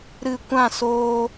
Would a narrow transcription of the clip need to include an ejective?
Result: no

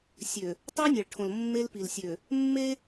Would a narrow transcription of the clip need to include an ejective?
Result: no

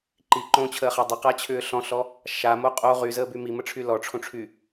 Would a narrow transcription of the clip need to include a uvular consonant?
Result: yes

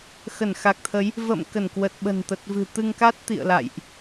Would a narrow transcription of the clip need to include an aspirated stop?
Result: yes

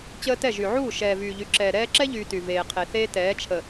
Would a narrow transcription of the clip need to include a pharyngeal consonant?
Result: yes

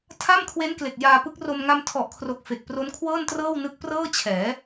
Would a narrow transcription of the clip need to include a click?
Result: no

